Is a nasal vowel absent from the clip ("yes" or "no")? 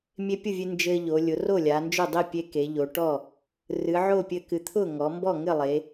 yes